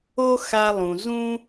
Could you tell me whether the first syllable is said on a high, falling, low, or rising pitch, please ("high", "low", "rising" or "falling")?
high